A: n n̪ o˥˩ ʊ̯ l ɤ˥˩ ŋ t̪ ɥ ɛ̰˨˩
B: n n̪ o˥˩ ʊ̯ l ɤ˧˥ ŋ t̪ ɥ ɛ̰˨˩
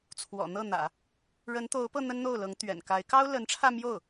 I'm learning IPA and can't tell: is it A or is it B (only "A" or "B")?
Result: B